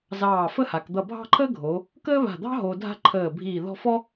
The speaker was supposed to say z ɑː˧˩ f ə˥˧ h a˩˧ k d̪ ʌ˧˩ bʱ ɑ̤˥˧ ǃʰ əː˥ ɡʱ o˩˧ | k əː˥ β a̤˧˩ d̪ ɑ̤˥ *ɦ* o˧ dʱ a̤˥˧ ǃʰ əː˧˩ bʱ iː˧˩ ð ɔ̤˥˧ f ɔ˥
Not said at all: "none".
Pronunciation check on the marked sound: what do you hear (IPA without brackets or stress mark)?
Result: ɦ